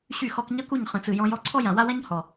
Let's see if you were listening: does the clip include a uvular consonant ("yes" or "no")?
yes